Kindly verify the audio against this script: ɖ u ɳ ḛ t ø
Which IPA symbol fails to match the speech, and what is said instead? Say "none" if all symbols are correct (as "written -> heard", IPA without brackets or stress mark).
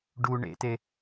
ø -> e